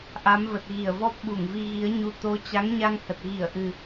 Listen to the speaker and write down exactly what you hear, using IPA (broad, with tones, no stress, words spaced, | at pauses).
ʔa˨˦mvə˨˩t̚ɣi˧˩ə̯vɔ˦˥p̚ ɓu˧˩ŋvi˧ɣi˨˦ə̯ ɲu˧ t̪o˨˦t͡ɕa˨˦ŋ ɲa˧ŋhə˨˩t̚ɣi˧˩ə̯ʔɨ˨˩